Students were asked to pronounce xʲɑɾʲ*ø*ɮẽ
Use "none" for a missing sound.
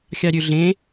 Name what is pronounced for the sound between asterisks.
ø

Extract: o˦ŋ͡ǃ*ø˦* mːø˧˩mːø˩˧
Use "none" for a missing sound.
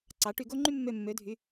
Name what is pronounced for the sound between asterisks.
y˦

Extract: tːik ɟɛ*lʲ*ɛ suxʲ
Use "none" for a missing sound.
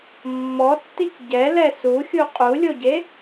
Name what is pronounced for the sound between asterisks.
l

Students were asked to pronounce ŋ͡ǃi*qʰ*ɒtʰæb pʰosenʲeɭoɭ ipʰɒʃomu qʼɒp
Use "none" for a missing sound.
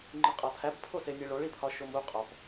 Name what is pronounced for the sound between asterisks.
qʼ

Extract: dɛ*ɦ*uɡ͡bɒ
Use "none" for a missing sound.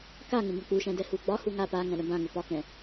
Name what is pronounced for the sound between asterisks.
h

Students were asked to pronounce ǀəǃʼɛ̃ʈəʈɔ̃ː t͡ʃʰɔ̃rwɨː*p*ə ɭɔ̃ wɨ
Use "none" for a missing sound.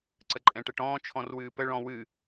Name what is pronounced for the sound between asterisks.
p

